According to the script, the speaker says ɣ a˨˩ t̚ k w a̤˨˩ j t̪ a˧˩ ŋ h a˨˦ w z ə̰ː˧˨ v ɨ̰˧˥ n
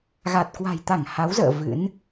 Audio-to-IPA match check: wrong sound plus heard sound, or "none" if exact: none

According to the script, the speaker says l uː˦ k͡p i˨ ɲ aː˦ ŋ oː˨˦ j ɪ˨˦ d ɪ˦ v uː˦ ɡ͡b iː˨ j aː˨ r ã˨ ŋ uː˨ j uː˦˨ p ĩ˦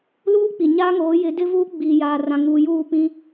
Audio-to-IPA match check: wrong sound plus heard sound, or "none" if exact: none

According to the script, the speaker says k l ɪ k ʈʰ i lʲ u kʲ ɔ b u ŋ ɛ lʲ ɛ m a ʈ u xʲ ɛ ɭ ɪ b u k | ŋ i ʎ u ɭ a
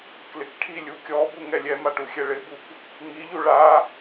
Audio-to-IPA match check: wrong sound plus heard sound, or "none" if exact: none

